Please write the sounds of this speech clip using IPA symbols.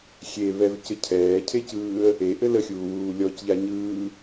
xʲ e β ɛ v c ɘ cʰ ɛː cʰ e c ɯː ə̯ | e ʔ ɘ l ə xʲ uː w uː lʲ ɔ c ʎ a ɲ ɯː

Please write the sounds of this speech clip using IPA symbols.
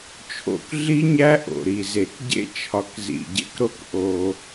t͡ʃʰ o̰˨ k ɮ i˦ ɲ æ˦ ʔ o̰˨ ɾ i˨ z e˨ k ɟ ḛ˦ t͡ʃʰ ɒ˨ k z ḭ˨ ɟ ḛ˦ k ɾ o˦ k ʔ o˦

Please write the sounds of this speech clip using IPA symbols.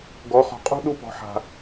ɡ ɔ˨˦ χ ɔ̤˨ qʼ ṳ˦ ɗ u˦ p ɔ̤˨ ħ a̤˨

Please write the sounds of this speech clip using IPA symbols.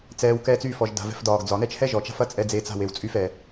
t͡s ɛː˨ w k ɛː˧ t͡s y˦˨ f ɔ˨ ʒ d a̤˨ v ɛ̤˧ f d ɒː˨ ɡ d͡z ɒ˨ n ɛ˦ t͡ʃ h ɛ˦ ʒ ɔ˨ t͡ʃ a̤˦ f ɐ˦ t͡sʼ ɛ˧ d͡z eː˧ t͡s a̤˦˨ w e˨ w t͡sʼ y˧ f ɛ˨

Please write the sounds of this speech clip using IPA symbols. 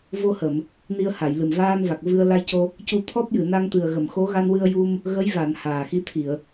v o˧ h ə˨˩˨ m | n i˧ ə̯ h a˨˩˨ j l ɨ˨˩ m v aː˧ n v a˨˩ k̚ v ɨ˧ ə̯ l a˧ j c o˧ | c u˧ t̪ʰ ɔ˦˥ p̚ j ɨ˨˩˨ n a˧ ŋ t̪ ɨ˨˩ ə̯ ɣ ə˨˩˨ m x o˧˥ ɣ a˧ n w ɨ˧ ə̯ j u˧ m | ɣ ə˧˥ j v a˨˩˨ n h aː˨˩ x i˧˥ t̪ʰ i˨˩˨ ə̯

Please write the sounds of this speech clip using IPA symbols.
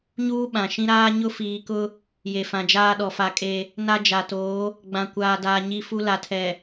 ɲ uː˦ ɓ ã˨ ʃ ĩ˦ ɾ aː˦ ɲ ʊ˦ f iː˨ k ʊ˦ | j e˨ f ã˨ d͡ʒ aː˦ ɗ ɔ˨ f a˨ kʼ e˦ | n a˦ d͡ʒ a˨ t oː˨˦ | ɡ͡b ã˨ kʷ aː˨ d aː˨ ɲ i˦ f u˦ l a˨ tʰ ɛ˨

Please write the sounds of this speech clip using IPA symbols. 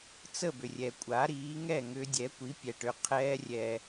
t͡s ə˥˩ b ʏ˩ rʲ ɛ˩ kʷʼ a˩˥ ɾ iː˩˥ ŋ ɛ˥˩ ŋ ʏ˧ dʲ ɛ˩˥ kʷ i˩˥ pʲ ɛ˩ ʈ ʏ˩˥ qʰ ɛː˧ rʲ ɛ˩

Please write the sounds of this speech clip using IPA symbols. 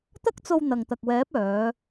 t̪ ɐ˥ k̚ t͡s o˧ w n̪ ɐ˨ ŋ t̪ ɐ˨ k̚ w ɛː˨˥ p̚ œː˨˧

